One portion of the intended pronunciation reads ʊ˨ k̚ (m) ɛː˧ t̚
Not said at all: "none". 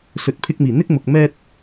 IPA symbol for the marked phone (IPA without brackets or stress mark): m